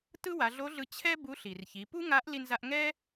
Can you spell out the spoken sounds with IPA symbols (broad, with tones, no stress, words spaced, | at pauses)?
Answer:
tɯ˥wa˩˧ɮo˧˥ɮɯ˧ t͡ɕʰɛ˥ bu˧˥ɬi˩rçi˩˧ pu˥ŋa˧˥ʔ li˧nza˧ʔ ŋɛ˥